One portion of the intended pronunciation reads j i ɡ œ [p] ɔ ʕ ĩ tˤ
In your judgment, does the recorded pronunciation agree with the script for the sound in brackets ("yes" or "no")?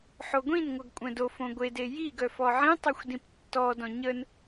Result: no